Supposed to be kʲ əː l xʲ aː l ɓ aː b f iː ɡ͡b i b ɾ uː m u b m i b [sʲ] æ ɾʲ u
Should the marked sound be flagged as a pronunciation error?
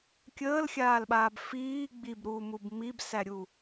yes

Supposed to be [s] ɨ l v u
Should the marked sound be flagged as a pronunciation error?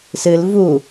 no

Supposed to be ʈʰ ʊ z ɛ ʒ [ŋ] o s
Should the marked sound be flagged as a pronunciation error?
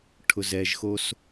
yes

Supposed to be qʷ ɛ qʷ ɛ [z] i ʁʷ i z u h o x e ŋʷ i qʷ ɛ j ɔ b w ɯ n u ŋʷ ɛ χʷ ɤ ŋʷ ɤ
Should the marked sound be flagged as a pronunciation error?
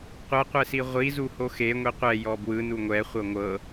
yes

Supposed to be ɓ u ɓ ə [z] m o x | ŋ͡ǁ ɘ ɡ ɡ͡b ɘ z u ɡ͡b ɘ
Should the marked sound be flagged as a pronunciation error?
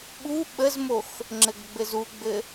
no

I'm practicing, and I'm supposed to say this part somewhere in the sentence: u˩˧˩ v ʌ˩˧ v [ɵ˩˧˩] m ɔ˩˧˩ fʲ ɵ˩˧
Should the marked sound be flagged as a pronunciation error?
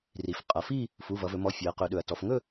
yes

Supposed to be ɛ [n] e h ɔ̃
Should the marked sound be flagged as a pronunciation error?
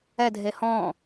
yes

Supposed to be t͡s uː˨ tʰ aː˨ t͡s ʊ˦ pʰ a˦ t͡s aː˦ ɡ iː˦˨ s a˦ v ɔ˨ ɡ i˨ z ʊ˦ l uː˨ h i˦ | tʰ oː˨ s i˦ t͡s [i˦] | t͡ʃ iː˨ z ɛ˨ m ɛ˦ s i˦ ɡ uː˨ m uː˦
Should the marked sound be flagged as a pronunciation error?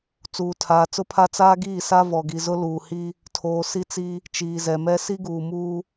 no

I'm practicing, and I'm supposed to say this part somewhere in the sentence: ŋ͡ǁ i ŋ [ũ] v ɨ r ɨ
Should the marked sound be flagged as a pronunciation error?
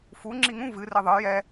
no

